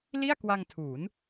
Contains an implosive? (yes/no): no